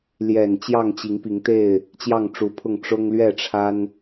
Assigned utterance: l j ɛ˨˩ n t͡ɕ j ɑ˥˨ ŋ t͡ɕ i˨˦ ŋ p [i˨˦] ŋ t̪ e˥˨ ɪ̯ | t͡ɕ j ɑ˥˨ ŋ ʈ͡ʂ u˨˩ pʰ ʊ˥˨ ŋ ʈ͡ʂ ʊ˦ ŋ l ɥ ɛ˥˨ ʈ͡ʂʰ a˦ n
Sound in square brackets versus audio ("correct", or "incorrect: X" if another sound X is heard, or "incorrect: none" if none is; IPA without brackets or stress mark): correct